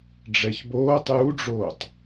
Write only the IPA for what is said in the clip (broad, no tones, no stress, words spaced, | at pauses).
ɖ͡ʐɛçboːtˤ juɖ͡ʐoːtˤ